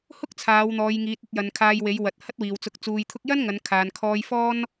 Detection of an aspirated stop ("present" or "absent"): present